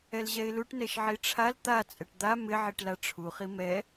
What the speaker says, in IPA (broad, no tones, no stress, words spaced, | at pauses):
ɛlʑɛɪ̯luʈ nɛʃʕiʈ͡ʂʰal t̪a t͡sʼɛʈd̪a mɪ ʕiʈlaʈ͡ʂʰu χimɛ